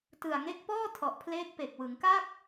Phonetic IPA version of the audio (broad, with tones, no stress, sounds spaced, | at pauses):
t ɯ˨˩ a̯ ŋ e˦˥ k̚ p ɔː˥˩ tʰ ɔ˨˩ ʔ pʰ l eː˦˥ k̚ p e˨˩ k̚ w ɯ˩˦ ŋ k a˥˩ k̚